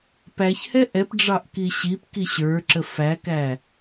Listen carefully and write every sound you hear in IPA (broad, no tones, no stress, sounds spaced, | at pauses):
p æ ç h ɛ ʔ ɛ p ɖ͡ʐ ɑ ʔ k i ɕ i p k i ɕ ə˞ ǁ ə f æ k æ